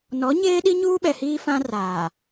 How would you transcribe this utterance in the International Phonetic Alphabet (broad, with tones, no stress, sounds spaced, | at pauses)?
n ɔ˨˦ ɲ eː˦ ɗ i˦ ɲ uː˦ ɓ ɛ˨ h iː˦ f ã˦ r aː˨